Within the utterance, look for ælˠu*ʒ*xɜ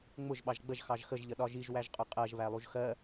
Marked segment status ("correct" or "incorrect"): correct